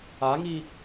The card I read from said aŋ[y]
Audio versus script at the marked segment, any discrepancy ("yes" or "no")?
yes